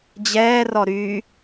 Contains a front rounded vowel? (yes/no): yes